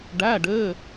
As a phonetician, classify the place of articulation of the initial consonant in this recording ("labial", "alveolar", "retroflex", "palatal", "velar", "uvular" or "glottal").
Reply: retroflex